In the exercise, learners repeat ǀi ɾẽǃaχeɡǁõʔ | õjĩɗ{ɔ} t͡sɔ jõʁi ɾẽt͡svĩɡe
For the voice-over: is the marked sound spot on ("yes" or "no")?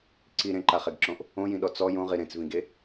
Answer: yes